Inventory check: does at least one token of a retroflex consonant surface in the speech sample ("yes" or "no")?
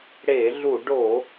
yes